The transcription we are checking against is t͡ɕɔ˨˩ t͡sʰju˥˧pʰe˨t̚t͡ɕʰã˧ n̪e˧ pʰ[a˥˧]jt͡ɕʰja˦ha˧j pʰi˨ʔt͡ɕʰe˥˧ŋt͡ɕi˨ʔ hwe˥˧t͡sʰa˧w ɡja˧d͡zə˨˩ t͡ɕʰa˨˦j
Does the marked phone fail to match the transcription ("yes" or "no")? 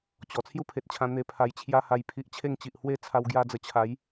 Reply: yes